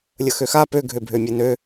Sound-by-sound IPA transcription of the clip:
lʲəxøxa pø ɡʱøbʱømʲenø

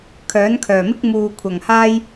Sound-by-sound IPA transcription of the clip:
kʰœː˨˥nkʰœː˨˩mɪ˥k̚ muː˨kʷʰɐ˨˩ŋhaː˥j

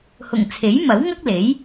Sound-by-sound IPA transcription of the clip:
hʊ˨˩ŋt͡sʰe˨˥jmɐ˨˥w ŋɐ˥k̚le˨˥j

